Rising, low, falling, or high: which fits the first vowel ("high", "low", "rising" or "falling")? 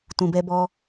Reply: low